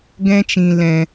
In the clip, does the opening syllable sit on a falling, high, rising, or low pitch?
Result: high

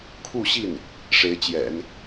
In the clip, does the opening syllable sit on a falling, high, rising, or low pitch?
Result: falling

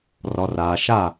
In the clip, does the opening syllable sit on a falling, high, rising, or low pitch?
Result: low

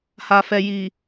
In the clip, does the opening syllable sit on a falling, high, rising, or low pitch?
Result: low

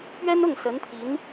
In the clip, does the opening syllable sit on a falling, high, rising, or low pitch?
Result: high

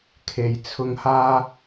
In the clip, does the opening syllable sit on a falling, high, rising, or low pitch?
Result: low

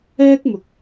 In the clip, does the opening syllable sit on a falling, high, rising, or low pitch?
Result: high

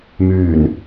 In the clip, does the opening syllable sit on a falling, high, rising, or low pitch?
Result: low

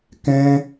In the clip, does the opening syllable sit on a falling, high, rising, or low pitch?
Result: high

